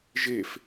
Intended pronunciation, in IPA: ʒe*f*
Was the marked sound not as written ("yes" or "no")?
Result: no